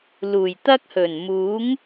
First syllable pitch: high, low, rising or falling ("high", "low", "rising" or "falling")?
low